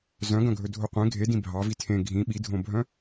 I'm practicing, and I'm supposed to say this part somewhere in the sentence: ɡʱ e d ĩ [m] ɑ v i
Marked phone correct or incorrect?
incorrect